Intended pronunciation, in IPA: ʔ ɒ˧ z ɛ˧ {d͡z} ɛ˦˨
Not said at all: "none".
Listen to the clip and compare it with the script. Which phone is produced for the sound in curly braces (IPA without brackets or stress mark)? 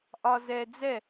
d͡z